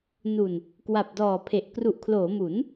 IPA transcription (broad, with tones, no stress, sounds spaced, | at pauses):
n u˨˩ n | k w a˨˩ p̚ d ɔː˨˩ pʰ e˨˩ ʔ k r u˨˩ ʔ kʰ l oː˩˦ m u˩˦ n